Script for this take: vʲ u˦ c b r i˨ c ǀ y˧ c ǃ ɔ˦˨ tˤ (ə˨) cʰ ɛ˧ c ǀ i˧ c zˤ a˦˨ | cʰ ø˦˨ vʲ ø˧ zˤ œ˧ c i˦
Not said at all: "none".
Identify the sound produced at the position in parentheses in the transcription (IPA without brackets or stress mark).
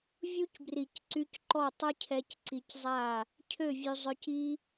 ə˦